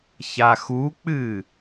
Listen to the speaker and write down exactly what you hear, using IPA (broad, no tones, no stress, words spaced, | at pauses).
çaxuk͡pɨ